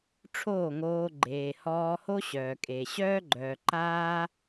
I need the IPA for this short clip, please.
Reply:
ʈ͡ʂʰ oː˦˨ ŋ oː˧ ɡ͡ǃ eː˨ h ɔː˧ h o˦ ɕ œː˨ kʼ e˨ ɕ œː˦ ɡ͡ǃ œː˨ ǃ aː˦

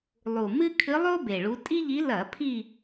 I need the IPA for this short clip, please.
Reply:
lˠ u˨˩ m ɨ˥ kʰ ɨ˧˥ lˠ o˥ b e˨˩ ɭ u˧˥ tʼ i˥ ʎ i˧˥ l ɐ˧˩˧ pʰ i˦˨

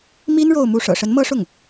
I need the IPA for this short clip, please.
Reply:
m i˥ n ɻ o˥˧ ʊ̯ m u˥˩ ʂ ɤ̰˨˩ ʂ ə˧˥ n m ɤ˥ ʂ ʊ˥˩ ŋ

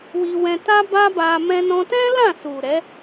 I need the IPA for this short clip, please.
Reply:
w i˧ w ɛ̃˧ t a˦ b a˦ b a˧ m ɛ̃˧ n ɔ̃˧ t ɛ̃˦ l ã˦˨ s u˨ ɾ ɛ˨˦

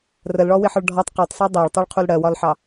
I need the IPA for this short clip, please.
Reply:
r ə l ɭ ɔ w ɪ ħ ɒ ɭ ɖʱ ɒ tˤ q ɜ tˤ sˤ ɜ dˤ æ ɭ tˤ u ɭ qʰ u l ɽ ɜ w ɒ l ħ ɑ

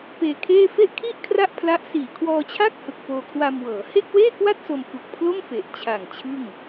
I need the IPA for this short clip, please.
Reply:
p eː˧ kʰ eː˥˩ f e˥˩ ʔ kʰ i˥˩ ʔ kʰ r a˥˩ ʔ pʰ l a˦˥ ʔ s iː˨˩ kʰ w ɔː˧ t͡ɕʰ a˥˩ k̚ h ɯ˨˩ k̚ p oː˧ kʰ w a˧ m w ɤː˩˦ h e˥˩ k̚ w eː˥˩ k w a˥˩ t̚ s o˧ m f u˨˩ k̚ pʰ l o˥˩ m f e˨˩ ʔ t͡ɕʰ a˨˩ ŋ t͡ɕʰ ɯ˥˩ ŋ

